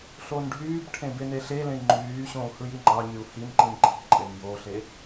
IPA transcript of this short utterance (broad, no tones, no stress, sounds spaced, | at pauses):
ɬ o n ɖʱ yː b ʈʰ ẽ b e n e ɬ e l ẽ i̯ ŋ͡ǃ yː ɕ õ u̯ h ɯ j i ŋ͡ǃ ɑ ɲ y u̯ h i n ǃ ĩː ǃʰ i̤ ǃʼ e n j o ɬ e